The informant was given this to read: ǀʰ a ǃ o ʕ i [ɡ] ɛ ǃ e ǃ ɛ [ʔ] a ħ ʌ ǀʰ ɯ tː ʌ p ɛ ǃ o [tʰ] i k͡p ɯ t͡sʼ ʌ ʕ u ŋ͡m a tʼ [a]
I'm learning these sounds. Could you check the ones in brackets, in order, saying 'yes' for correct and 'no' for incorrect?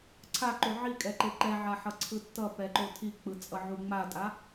no, no, yes, yes

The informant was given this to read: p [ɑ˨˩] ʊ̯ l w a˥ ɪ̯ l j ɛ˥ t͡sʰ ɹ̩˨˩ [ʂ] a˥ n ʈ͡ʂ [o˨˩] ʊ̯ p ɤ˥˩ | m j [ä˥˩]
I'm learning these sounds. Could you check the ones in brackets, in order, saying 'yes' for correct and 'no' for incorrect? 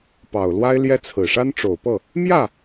yes, yes, yes, yes

